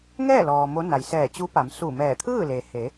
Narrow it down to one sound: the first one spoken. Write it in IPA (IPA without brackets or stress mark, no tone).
ŋ